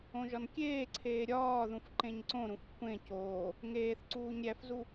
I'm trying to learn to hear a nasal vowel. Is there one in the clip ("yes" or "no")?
yes